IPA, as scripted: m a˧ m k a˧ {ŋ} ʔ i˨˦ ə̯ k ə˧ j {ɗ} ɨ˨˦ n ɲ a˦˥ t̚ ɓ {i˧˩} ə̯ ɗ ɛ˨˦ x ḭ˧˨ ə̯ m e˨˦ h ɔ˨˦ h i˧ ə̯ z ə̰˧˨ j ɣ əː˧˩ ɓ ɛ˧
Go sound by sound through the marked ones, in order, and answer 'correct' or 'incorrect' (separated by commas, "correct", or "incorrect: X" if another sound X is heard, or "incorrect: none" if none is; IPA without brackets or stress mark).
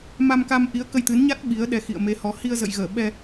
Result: incorrect: m, incorrect: t̪, incorrect: i˨˦